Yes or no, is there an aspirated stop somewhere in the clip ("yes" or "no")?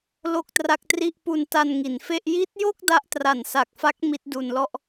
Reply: no